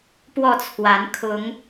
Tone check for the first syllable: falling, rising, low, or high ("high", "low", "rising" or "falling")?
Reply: falling